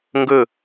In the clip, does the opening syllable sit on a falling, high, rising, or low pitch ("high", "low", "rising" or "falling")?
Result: falling